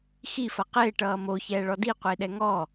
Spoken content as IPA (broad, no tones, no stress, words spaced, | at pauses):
xifɐ qɪːʈʌː moçɛːɭɔ diqʷɪːɗɛ ŋɔ